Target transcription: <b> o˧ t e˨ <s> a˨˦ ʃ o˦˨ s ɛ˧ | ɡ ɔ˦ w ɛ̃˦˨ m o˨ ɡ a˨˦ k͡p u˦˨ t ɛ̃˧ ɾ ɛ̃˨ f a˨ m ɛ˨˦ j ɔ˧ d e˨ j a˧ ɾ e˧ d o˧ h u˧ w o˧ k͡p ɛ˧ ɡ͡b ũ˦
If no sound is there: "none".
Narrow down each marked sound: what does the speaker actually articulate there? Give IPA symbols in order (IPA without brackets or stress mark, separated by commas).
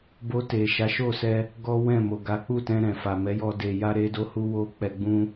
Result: b, ʃ